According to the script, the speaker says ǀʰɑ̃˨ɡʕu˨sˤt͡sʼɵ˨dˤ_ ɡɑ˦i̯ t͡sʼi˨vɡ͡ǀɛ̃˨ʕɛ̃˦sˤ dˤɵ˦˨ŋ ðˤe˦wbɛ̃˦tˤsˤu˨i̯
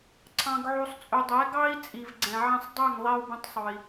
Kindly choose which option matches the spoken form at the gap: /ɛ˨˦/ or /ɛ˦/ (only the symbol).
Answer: ɛ˨˦